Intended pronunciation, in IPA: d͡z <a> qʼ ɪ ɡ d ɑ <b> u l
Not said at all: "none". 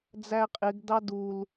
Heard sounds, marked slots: æ, d

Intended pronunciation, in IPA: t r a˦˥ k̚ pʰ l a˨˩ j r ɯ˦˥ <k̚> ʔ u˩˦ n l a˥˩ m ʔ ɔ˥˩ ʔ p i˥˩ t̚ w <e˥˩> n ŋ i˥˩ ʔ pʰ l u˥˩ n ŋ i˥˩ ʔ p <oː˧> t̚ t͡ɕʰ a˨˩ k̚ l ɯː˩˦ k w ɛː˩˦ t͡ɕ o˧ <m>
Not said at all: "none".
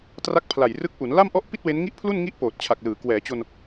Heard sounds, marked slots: k̚, e˦˥, oː˨˩, n

